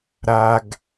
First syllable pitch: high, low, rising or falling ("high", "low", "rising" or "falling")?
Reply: low